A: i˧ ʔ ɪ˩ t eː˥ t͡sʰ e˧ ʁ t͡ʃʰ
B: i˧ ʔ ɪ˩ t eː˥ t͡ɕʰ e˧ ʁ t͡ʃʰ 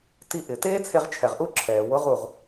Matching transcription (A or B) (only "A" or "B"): A